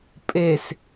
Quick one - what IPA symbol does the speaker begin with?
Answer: pʼ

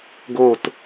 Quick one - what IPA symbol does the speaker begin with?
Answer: ɡ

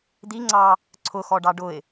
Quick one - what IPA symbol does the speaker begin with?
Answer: d̪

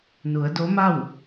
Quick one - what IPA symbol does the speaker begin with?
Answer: n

